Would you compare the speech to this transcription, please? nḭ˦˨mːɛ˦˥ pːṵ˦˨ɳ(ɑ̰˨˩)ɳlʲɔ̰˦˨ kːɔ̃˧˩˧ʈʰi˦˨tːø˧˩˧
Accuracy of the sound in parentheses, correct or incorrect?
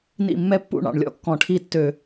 correct